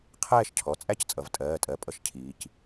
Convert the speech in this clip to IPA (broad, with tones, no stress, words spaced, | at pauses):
qʰɛː˥˧ʃcʰɔ˩˧˩ t͡sʼæ˥˧ct͡sʼʌ˩˧v tʼɜː˩˧˩tʼɜ˩˧˩ pʼʌ˥˧ʃcʰiː˩˧c